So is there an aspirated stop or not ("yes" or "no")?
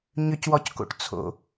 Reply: yes